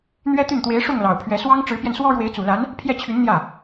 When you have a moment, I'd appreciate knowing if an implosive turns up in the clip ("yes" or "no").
no